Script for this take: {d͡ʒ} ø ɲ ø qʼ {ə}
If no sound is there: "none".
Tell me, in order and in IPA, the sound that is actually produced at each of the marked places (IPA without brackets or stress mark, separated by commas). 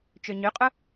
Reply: t͡ʃ, ʊ